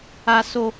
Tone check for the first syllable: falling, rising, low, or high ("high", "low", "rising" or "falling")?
high